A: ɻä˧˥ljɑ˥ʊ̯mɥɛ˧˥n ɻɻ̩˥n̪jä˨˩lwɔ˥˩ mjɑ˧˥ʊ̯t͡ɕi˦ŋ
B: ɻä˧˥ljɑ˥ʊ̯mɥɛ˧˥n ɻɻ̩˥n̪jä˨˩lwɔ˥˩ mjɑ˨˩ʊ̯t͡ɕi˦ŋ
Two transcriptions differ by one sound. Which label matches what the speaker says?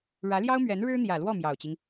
B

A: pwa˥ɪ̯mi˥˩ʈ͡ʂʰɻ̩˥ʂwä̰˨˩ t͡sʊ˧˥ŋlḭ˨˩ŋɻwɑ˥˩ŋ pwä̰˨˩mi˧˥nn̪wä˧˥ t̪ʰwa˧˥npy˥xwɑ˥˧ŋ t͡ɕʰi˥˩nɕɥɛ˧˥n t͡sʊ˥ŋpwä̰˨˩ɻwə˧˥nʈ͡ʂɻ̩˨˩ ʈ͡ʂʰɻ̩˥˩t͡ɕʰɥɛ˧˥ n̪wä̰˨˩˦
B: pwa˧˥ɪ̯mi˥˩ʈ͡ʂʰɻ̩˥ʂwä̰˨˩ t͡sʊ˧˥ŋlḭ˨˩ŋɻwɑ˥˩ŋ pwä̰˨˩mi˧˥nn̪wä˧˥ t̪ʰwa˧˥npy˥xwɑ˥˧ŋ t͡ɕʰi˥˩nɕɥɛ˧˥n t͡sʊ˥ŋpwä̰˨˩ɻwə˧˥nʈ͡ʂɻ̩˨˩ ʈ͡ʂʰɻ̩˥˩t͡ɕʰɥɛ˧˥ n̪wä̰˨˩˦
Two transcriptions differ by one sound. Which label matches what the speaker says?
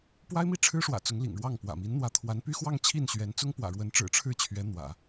A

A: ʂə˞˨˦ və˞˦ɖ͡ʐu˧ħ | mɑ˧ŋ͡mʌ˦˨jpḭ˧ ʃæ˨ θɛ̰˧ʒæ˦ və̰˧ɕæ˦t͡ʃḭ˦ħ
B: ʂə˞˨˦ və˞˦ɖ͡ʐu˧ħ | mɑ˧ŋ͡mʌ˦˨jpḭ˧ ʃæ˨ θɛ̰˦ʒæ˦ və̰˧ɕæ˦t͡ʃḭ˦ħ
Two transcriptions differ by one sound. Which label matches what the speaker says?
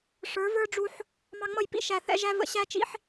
B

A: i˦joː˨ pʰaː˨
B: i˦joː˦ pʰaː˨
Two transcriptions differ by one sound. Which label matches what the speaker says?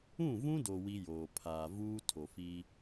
A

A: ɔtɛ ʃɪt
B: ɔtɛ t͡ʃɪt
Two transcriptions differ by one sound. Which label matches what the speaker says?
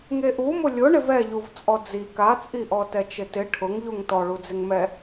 B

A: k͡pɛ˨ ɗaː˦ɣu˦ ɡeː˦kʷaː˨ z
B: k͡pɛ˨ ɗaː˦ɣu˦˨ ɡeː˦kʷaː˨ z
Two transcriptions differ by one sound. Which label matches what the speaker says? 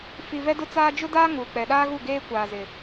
B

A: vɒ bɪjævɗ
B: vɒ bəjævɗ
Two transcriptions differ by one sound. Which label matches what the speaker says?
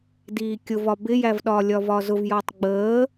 A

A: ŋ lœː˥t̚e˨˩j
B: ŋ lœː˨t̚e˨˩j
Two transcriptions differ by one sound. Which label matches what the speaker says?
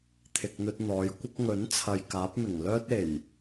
A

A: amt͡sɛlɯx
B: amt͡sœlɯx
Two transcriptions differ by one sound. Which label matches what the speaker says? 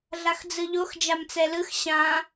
A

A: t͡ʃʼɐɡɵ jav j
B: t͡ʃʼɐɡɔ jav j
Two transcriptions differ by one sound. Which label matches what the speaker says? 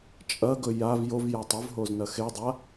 A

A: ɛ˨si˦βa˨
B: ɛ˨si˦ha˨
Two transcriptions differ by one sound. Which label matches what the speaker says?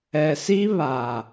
A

